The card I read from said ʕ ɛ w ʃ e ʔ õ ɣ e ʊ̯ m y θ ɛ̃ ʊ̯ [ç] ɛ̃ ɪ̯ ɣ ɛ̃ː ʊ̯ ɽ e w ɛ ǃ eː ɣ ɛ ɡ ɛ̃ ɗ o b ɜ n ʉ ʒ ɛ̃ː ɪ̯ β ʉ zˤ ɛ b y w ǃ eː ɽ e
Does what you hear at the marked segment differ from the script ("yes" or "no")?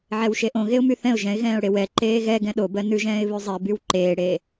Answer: yes